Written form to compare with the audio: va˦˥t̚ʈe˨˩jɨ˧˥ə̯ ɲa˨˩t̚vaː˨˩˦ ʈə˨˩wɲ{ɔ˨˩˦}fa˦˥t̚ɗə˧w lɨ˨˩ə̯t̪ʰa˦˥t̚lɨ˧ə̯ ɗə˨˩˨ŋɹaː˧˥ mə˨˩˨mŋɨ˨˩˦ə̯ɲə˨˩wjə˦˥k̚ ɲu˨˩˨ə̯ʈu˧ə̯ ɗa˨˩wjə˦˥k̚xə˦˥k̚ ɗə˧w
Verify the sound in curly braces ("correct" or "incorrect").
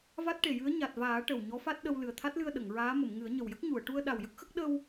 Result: incorrect